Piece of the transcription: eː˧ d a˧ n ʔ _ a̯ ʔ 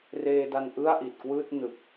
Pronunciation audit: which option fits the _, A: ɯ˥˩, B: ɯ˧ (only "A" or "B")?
A